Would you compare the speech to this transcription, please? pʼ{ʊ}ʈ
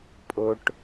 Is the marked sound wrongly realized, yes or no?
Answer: no